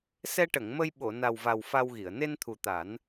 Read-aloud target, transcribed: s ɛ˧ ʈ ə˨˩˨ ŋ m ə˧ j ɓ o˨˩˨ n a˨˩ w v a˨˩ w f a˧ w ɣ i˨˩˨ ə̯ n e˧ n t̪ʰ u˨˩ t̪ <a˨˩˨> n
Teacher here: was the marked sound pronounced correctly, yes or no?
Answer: no